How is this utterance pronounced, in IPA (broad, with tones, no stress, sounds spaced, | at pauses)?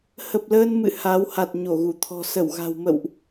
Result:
h ə˨˩ p̚ l əː˧ n m ɨ̰˧˨ h a˨˦ w h a˨˩ t̚ ɲ o˧˩ ɣ u˧˩ t̪ʰ ɔ̤˨˩ s ə˧˩ w ɣ a̤˨˩ w m ə̰˧˨ w ʔ